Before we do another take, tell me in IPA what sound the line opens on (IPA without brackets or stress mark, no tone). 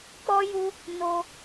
k͡p